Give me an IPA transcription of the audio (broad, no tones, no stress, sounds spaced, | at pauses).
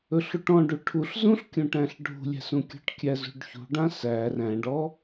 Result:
ɵ ɬ u ʈ ɔ̃ ɖ u ʈʰ u ɬ z ũ ɬ kʲ ũ ʈ æ̃ ɬ ɖʱ ṳ lʲ æ̤ s ũ kʲ ɔ̤ ʈ kʲ æ z ṳ ɖ ç ṳ ɖ ã s æ r æ̃ ɖ ɔ